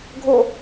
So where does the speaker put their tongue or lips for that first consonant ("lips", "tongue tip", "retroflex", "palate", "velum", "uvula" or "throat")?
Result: velum